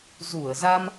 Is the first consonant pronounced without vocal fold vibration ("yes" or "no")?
no